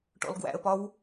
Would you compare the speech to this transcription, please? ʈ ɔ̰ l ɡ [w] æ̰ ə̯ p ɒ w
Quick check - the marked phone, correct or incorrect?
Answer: correct